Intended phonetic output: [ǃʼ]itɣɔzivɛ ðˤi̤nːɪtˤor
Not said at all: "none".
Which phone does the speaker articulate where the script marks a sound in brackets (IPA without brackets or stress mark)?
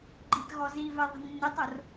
ɡ͡ǃ